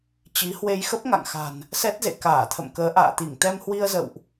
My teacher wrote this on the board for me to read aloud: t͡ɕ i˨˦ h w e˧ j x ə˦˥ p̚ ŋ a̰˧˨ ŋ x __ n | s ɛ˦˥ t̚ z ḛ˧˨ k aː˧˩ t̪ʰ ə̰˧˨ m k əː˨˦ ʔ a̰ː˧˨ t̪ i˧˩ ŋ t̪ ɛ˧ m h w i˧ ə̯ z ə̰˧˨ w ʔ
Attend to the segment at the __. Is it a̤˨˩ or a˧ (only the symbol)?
a̤˨˩